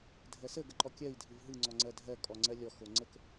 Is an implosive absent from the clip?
yes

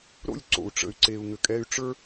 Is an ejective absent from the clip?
no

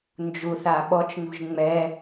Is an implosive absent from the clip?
no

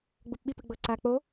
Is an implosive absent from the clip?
no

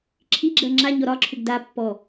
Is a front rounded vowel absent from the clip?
no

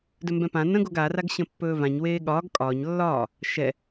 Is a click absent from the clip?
yes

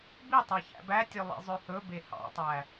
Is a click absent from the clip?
yes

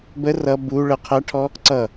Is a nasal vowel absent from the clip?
yes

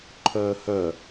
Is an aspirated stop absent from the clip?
no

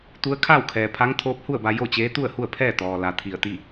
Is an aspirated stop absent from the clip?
no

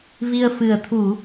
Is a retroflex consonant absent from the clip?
yes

